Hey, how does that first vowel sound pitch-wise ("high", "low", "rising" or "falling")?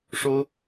high